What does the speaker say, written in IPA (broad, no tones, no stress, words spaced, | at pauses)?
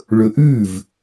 ɭɵʔʉv